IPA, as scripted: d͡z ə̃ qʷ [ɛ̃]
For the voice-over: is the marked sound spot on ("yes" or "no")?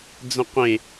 no